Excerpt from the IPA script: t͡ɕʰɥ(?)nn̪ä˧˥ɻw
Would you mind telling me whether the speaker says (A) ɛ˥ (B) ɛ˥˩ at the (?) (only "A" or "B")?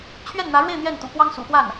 B